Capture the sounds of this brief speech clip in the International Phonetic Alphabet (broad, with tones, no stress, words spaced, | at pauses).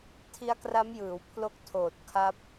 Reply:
tʰi˦˥a̯kra˦˥mjɯː˩˦w pʰlo˦˥k̚tʰoː˨˩t̚ kʰa˦˥p̚